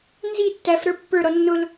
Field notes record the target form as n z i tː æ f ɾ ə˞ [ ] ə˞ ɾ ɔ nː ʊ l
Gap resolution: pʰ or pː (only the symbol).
pː